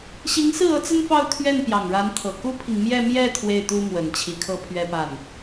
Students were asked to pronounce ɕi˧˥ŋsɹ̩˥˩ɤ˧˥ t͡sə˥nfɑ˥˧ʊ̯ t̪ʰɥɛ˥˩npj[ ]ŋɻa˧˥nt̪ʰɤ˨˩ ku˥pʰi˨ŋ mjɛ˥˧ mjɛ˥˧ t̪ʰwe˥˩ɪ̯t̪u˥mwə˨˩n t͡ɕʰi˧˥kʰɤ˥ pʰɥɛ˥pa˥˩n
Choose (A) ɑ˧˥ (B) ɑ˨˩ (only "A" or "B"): B